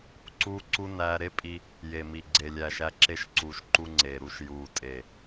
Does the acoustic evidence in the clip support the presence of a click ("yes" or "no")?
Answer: yes